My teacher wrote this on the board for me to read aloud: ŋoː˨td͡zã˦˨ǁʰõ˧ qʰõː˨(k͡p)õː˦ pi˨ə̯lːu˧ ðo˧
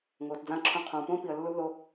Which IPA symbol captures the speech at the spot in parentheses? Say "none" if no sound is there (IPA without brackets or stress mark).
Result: p